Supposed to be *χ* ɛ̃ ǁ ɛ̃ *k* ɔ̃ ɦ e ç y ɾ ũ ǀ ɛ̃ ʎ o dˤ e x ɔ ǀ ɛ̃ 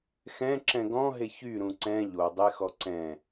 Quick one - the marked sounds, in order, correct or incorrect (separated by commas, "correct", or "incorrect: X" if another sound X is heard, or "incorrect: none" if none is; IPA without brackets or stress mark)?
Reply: incorrect: x, incorrect: ɡ